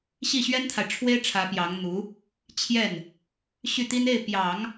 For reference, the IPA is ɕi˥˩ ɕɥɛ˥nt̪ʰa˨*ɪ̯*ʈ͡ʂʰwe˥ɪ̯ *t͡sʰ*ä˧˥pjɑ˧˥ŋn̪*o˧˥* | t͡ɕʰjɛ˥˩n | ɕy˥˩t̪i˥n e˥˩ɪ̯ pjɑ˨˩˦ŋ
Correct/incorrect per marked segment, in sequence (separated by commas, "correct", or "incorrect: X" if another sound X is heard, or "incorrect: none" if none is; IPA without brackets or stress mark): correct, incorrect: ʈ͡ʂʰ, incorrect: u˧˥